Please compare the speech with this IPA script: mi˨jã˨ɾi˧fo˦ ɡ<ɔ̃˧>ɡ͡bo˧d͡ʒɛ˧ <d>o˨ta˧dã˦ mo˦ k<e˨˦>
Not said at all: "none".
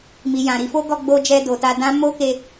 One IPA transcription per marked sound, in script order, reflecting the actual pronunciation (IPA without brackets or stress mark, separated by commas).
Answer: ɔ˧, d, e˧